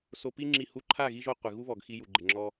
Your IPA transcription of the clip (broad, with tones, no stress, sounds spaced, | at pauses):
s o˧ p i˦ ŋ͡ǁ i˦˨ h u˦ ǃʰ a˦˨ ɣ i˧ ʒ o˧ qʷ ɪ˨ ɣ u˦ β ɔ˨ ɡ x i˧ j u˨ ɡ͡ǃ ɪ˨ ŋ͡ǁ ɔ˧